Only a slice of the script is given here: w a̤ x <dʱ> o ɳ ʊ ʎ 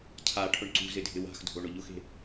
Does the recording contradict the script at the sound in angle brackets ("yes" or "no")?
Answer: no